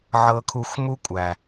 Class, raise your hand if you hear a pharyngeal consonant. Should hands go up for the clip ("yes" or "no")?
yes